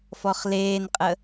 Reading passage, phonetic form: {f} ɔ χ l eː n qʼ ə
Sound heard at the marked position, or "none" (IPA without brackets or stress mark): f